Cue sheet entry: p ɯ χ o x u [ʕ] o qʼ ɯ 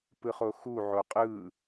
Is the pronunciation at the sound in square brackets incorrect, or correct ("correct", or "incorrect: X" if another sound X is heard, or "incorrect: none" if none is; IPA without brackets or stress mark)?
correct